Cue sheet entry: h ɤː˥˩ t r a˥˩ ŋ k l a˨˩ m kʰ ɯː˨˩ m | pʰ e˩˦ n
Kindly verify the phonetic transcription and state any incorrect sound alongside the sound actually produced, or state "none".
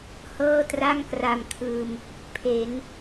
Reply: l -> r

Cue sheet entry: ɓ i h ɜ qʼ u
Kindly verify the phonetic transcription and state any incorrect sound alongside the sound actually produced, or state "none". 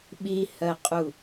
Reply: none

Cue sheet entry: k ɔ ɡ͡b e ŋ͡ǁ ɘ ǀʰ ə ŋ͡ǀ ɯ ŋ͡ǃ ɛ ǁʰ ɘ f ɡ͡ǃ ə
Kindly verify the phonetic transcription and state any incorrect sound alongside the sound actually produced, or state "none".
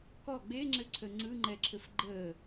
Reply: none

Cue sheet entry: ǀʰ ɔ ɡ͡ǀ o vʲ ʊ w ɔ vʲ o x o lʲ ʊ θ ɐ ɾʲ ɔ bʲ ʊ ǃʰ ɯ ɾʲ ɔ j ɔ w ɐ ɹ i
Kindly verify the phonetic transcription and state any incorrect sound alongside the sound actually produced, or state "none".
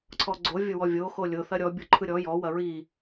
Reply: none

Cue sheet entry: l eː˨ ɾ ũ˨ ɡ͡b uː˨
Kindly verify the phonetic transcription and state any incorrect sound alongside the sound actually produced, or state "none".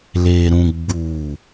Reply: none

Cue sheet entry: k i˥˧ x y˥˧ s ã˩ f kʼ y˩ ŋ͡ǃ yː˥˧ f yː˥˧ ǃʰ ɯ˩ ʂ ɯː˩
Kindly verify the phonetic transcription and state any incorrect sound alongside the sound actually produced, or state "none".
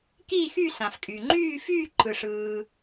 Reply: i˥˧ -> iː˥˧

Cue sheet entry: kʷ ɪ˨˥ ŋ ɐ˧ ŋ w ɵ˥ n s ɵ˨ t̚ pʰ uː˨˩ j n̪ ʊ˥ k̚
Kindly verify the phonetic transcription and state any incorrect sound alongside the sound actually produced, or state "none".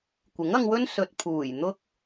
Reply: none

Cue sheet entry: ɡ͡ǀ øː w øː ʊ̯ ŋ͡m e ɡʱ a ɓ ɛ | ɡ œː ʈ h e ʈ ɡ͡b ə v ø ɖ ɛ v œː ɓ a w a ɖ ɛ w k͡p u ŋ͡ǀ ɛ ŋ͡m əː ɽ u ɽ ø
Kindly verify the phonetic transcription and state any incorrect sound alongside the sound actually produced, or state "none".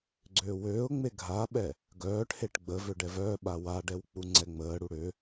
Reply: none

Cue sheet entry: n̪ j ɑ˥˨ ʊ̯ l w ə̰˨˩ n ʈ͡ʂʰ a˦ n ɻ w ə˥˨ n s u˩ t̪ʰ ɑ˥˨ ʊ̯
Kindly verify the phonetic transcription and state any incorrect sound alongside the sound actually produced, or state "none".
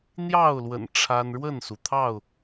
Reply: none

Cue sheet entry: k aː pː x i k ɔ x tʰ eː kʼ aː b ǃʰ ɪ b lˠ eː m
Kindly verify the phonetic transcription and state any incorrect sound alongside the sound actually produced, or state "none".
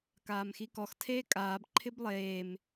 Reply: pː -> m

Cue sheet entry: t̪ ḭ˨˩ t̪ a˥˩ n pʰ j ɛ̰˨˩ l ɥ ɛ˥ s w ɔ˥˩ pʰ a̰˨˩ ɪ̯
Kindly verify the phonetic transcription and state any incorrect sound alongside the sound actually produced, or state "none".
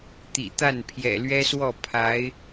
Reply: a̰˨˩ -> a˧˥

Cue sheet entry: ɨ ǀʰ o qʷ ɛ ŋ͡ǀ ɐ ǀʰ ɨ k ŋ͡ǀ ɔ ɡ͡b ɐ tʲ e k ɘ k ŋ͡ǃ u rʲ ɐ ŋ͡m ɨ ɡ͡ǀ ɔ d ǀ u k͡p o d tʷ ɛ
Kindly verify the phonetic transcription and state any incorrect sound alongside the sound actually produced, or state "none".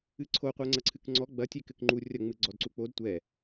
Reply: none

